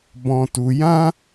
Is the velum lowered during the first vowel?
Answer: yes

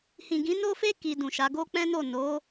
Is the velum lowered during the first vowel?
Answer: yes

